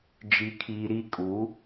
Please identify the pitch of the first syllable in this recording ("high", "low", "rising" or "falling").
low